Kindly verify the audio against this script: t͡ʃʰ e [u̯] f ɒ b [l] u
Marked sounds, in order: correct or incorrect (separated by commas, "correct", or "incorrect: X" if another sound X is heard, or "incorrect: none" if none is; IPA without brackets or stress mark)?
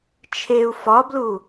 correct, correct